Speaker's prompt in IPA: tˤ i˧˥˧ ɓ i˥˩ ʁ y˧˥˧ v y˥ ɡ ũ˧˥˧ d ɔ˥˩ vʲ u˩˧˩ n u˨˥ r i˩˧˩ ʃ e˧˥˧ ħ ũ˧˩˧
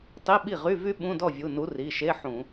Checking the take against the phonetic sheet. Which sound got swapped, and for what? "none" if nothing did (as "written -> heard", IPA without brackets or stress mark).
ɡ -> ɓ